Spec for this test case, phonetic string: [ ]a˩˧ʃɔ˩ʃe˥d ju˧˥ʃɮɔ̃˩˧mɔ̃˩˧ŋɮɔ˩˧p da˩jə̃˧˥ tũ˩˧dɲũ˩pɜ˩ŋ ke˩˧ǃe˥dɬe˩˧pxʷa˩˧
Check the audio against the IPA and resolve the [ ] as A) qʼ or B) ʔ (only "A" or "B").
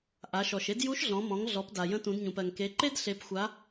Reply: B